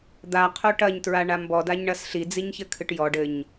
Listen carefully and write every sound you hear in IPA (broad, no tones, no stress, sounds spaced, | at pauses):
d̪ a qʰ o ʈ ɐ ɲ t ɹ a ɳ a m b ɔ d a ɲ ɳ ɐ s ɬ i d͡z i ɲ ç ɘ kʰ ɨ ʈ j ɔ ɖ ɘ ɲ